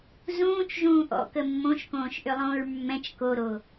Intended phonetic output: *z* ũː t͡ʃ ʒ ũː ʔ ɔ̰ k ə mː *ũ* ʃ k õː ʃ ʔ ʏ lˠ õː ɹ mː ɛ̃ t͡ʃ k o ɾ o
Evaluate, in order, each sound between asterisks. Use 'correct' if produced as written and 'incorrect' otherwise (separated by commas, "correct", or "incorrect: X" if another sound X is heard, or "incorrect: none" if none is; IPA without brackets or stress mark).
correct, incorrect: õ